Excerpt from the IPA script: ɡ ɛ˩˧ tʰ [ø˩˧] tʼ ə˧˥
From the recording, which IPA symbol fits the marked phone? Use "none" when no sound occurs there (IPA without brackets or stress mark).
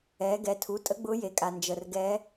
u˩˧